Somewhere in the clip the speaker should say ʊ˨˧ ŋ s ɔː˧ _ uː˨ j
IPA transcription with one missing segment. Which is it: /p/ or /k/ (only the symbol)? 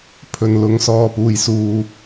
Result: p